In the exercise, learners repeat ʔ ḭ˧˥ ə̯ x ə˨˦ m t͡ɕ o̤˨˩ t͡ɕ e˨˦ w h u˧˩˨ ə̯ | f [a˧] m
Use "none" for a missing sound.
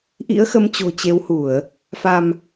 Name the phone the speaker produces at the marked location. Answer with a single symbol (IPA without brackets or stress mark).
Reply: a˧